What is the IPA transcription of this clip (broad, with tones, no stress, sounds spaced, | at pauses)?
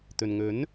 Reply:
t̪ ɵ˨ n ŋ ɵ˨˥ n